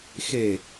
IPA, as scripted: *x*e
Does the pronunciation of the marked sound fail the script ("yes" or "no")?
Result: no